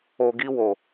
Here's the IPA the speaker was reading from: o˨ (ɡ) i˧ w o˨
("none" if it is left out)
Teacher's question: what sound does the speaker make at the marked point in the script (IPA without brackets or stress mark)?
ɡ